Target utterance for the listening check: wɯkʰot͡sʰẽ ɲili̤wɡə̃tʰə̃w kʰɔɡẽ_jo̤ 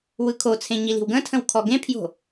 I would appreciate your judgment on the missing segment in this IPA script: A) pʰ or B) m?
A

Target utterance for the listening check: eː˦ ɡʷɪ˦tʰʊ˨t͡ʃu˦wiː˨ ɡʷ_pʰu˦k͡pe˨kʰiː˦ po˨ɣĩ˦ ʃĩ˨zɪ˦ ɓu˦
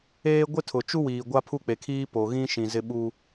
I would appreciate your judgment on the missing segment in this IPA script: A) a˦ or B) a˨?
A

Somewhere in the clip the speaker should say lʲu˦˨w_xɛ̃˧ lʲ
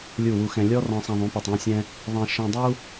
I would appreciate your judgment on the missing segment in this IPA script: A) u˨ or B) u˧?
B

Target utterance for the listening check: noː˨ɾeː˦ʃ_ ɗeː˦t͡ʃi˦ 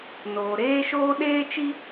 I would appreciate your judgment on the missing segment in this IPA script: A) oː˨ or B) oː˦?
B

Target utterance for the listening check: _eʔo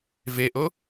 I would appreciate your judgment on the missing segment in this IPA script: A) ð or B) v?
B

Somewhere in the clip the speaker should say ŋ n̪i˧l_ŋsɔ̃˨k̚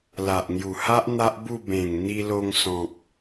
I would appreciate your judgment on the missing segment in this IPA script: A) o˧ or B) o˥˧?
A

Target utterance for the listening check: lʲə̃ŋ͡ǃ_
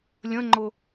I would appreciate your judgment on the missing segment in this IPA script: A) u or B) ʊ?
B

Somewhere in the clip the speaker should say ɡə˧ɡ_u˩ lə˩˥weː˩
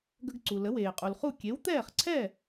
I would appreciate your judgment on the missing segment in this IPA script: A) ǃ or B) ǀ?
B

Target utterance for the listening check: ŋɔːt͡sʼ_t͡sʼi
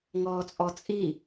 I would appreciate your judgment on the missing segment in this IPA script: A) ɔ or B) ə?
A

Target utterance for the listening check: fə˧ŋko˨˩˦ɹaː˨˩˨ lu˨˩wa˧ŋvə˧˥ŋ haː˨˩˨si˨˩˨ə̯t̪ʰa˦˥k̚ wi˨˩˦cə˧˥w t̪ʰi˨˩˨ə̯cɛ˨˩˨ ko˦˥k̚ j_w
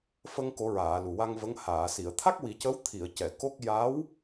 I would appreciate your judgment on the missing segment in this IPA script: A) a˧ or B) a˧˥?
B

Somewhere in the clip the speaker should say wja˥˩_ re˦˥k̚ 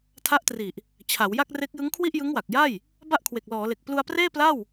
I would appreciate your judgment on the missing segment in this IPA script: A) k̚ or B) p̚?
A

